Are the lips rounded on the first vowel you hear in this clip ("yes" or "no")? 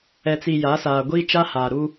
no